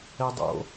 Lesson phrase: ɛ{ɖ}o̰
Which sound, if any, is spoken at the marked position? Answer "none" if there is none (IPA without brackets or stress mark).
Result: dˤ